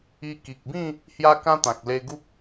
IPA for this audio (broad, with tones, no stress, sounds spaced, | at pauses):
i˧ k i˨ k̚ b ĩ˥˧ | h j a˦ k ã˦ t̪ ã˨ k̚ l e˧ ɡ u˦ k̚